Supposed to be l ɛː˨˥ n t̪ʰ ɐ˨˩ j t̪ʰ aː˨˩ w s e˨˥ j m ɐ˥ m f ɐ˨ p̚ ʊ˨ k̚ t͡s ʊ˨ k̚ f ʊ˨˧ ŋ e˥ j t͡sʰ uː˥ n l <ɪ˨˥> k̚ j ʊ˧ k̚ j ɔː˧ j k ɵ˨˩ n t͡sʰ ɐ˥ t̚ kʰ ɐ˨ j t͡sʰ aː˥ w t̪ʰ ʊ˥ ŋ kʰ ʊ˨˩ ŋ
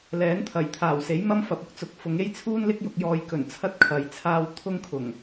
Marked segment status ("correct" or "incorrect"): incorrect